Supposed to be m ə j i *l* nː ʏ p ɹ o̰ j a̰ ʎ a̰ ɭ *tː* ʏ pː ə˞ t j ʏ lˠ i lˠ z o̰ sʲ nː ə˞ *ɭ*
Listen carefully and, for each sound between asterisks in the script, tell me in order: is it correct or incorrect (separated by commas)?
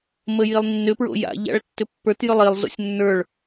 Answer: incorrect, correct, correct